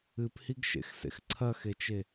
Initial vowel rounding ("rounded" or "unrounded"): unrounded